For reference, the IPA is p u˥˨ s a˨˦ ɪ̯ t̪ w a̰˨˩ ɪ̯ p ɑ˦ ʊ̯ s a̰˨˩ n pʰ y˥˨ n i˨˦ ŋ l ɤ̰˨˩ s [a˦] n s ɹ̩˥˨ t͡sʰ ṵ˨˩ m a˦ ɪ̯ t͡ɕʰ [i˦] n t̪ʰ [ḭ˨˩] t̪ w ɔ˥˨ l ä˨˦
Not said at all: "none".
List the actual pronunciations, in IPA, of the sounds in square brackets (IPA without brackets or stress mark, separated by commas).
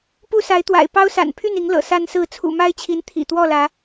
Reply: a˦, i˨˦, ḭ˨˩